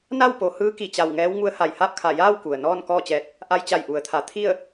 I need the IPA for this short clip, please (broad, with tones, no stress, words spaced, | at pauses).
na˥˨wpo˩˧ hɯː˧˥ki˧˩t͡ɕa˧˩w ŋɛː˧˥wŋu˧˥ə̯ha˧˩j ha˥˨p̚kʰa˧˩jaː˥˨w ku˩ə̯nɔː˥˨n kɔː˥˨t͡ɕɛː˧t̚ | ʔa˧jt͡ɕa˧˩jʔu˩˧ə̯t̪ʰa˩˧ t̪ʰi˥˨ə̯